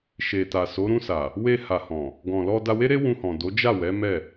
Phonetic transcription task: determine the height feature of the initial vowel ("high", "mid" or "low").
mid